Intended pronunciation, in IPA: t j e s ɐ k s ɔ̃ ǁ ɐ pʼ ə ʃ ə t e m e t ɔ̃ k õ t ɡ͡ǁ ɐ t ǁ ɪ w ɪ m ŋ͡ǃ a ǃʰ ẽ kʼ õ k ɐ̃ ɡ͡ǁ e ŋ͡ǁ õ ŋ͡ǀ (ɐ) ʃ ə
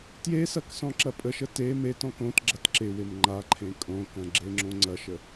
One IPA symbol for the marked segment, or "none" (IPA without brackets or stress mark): ɐ